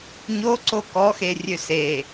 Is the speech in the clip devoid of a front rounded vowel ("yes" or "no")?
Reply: no